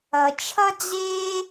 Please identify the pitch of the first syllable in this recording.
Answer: low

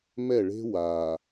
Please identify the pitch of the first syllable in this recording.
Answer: falling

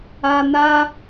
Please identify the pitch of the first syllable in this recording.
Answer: low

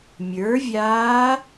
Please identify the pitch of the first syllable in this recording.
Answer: rising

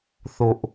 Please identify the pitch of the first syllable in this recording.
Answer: low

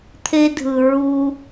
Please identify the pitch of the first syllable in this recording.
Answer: high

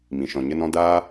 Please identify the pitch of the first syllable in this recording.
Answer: low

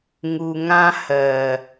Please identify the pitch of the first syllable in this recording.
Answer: low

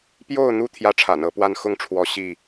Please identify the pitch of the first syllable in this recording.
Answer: falling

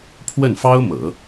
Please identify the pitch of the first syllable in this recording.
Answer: falling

